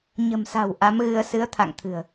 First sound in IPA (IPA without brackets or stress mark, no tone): ɲ